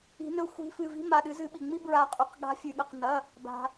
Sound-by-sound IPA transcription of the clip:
i̤˨˩˦nɵ˨˦xʷi̤˨˦fɨ˩˧˩ vi̤˦ma˩˧˩ɗɨ˨˦ zɨ˨˩˦ɓi˩ ŋ͡mi˦bɹa˨˩˦qʼʉ˩qɠa̤˨˦ fʲʉ˩ɠɐ˩˧˩qnɐ˩˧˩ | ba̤˩

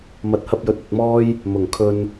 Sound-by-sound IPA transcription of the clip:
mɐ˨˥t̚hɐ˧p̚jɵ˨˥t̚ ɐ˧t̚mɔː˥j | mʊ˨˩ŋkʰɵ˧n

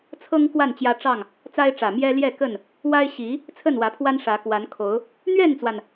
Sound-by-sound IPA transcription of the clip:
t͡sʰɤ˦ŋ kwa˥˨nt͡ɕjä˦ʈ͡ʂɑ˥˨ŋ | t͡sa˦ɪ̯ʈ͡ʂä˨˩mjɛ˦ ljɛ˥˨ kə˥˨n | wa˦ɪ̯ɕi˨˦ | t͡sʰə˥˨nwä˨˦pʰwa˦n ʂä˨˦kwa˨˦n kʰo˨˦ʊ̯ | n̪ɥɛ˥˨nt͡swa˩n

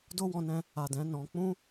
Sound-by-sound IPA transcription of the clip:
do˦wɔ̃˧nɛ̃˧ | a˨ dɛ̃˨˦nɔ̃˧ k͡pũ˦

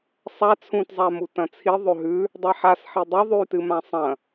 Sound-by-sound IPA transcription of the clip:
sˤa t͡sʰũtzˤamu tɐ̃t͡sʰi ðˤɵɦʉ | dˤaħas ħidˤɵ ðˤʉtɨ mãsˤɐ̃

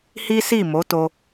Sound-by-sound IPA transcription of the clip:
hi˦si˦˨mo˨˦ to˦

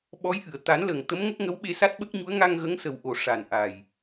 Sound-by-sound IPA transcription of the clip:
ɓɔ˧˥jʔɨ˨˩˨ə̯ t̪a˨˩˦nlə˨˩ŋ t̪ə˧˥mŋə˦˥k̚ ŋə˧˥wɓe˧ sa˦˥t̚ɓə˦˥k̚ɲu˧˥ə̯ ŋa˧ŋɣə˧˥ŋ sə˨˩wʔo˨˩ ʂa˨˩nʔa˨˩j

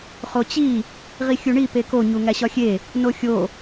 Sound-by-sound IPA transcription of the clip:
χot͡ɕi | ʁixʲuɳi peko ɲuŋæɕɒxʲe | noxʲo

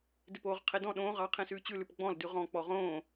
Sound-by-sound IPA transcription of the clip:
dɪpoːʁqʰedɔ̃ ɗõː ʁɑ qʰẽsʉːt͡ɕʉ lʉpɡ͡bɔ̃l dʉʁɔ̃ k͡pɔʁõː

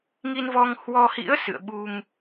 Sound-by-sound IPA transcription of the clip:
ŋi˧nvɔ˧ŋhwɔ˧hḭ˧˥ə̯ sɨ̰˧˨ə̯ ɓu˧ŋ

